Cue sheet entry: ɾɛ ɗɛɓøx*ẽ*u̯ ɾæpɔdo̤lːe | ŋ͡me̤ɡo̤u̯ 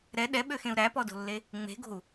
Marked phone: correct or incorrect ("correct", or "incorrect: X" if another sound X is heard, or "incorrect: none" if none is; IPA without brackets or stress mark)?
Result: correct